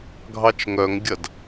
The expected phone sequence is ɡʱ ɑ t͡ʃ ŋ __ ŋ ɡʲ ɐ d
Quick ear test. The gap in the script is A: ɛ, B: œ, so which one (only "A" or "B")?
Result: B